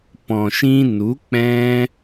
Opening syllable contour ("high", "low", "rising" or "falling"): low